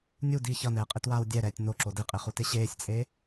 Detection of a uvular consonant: present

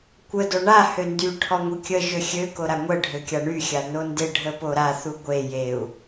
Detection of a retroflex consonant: present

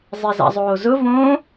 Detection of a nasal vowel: present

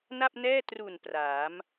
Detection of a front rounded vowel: absent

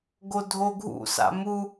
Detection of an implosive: absent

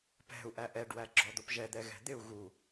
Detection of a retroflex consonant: present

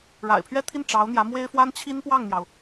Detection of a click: absent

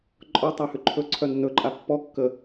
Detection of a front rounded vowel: present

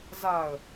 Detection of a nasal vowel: absent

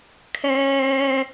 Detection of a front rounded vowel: present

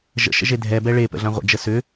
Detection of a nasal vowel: present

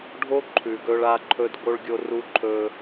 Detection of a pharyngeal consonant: absent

